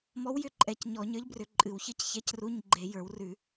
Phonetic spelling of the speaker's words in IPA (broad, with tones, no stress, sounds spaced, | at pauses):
m ɔ˧˥ w j ʏ˧˥˧ ǃʼ ɛ˧˩˧ c ɲ ɔ˧˩˧ ɲ ə˞˧˥ ʎ b r ʏ˧˩˧ ǃʼ ɨ˧˩˧ w ç ɨ˧˥ c ç ɛ˧˥˧ c r u˧˥˧ ɲ ɡ͡ǃ e˧˩˧ j ə˞˧˩˧ w r ʉ˧˩˧